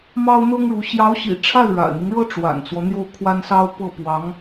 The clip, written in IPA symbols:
m ɑ˥ ʊ̯ n̪ ɤ˥ ŋ ɻ u˧˥ ɕ j ɑ˧˥ ʊ̯ ɕ ḭ˨˩ ʈ͡ʂʰ a˥˩ ɪ̯ ɻ a̰˨˩ ɪ̯ n̪ i˦ ŋ ɻ ɤ˥ ʈ͡ʂ w a̰˨˩ n t͡s w ɔ˦ n̪ j o˥˩ ʊ̯ kʰ w a˥ n s ɑ˥ ʊ̯ p ɤ˥˩ p w ɑ˧˥ ŋ

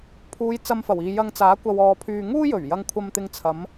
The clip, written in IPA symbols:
pʰ uː˨˧ j t͡s ɐ˧ m f ɐ˨˩ w iː˨ j ɐ˧ ŋ t͡s aː˨˥ kʷ ɐ˨ w ɔː˨ pʰ yː˧ ŋ uː˥ j ɵ˨˩ ɥ j ɐ˧ ŋ kʷʰ ɐ˧ m t̪ ɪ˧ ŋ t͡sʰ ɐ˨˧ m

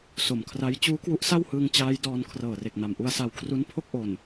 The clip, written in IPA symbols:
s o˨˩ m kʰ r a˦˥ j t͡ɕ uː˦˥ k w u˦˥ ʔ s a˥˩ w h ɯː˧ ŋ t͡ɕ aː˦˥ j d ɔː˧ n kʰ r ɤː˨˩ r e˨˩ k̚ n a˨˩ m ʔ u˧ a̯ s a˧ w kʰ r u˦˥ n pʰ o˥˩ k̚ ʔ o˨˩ n

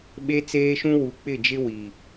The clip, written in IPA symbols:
ɓ e˦ t͡s eː˦ ʃ ũ˦ w u˨ k͡p ɪ˦˨ d͡ʒ ɪ˦ w i˨

